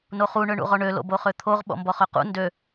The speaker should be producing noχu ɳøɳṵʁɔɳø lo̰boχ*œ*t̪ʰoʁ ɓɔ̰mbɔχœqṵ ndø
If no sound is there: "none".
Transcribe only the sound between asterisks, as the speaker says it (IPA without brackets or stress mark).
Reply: ø